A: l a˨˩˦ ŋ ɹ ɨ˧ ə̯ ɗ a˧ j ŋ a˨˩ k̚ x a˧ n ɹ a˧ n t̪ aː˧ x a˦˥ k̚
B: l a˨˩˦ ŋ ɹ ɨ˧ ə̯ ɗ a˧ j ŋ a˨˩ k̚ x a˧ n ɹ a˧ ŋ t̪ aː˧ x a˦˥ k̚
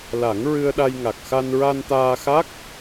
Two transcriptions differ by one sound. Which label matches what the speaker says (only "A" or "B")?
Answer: A